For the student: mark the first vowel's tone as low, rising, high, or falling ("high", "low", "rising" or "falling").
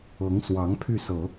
rising